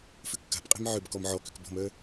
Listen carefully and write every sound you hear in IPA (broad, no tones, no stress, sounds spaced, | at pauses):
f ʏ kː a̤ p qʼ e̤ m ʕ ʏ b k ɔ m ʕ ɔ k ʏ k b ɔ̤ m œ